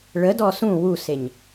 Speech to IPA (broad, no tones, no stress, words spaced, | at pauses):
ɭədɔ sũ wuseɲ